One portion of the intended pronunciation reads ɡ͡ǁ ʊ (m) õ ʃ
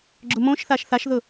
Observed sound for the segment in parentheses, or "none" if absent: m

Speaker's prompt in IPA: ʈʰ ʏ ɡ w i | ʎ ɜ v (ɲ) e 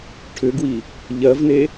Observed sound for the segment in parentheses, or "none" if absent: n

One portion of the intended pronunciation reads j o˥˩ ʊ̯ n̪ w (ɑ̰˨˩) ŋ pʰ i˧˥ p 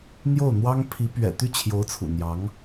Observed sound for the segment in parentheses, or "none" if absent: ɑ˥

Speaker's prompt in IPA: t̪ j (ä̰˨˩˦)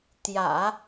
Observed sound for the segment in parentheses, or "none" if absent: ä̰˨˩˦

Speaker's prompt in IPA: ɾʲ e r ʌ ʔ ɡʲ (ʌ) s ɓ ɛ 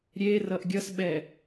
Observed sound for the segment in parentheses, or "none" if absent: ʌ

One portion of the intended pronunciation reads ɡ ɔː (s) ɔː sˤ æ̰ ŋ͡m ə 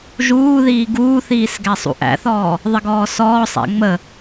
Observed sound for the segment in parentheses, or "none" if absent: s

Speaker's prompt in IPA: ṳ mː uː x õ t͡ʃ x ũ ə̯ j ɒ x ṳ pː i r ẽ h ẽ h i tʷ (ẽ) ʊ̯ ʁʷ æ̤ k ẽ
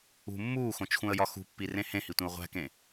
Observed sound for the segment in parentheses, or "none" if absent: ẽ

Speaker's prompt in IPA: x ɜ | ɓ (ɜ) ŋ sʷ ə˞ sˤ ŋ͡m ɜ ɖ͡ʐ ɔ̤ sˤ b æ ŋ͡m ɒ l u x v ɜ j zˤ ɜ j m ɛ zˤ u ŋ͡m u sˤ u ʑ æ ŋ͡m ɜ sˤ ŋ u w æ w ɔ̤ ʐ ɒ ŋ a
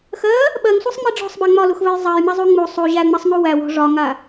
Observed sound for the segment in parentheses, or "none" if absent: ɜ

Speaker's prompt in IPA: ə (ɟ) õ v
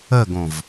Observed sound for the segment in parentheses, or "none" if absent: ɡ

